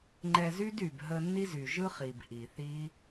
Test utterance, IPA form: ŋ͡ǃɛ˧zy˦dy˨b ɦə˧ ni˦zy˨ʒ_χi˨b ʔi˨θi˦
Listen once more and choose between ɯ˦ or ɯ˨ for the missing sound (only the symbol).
ɯ˦